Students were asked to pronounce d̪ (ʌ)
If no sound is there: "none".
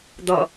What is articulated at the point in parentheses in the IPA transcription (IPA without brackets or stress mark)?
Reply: ʌ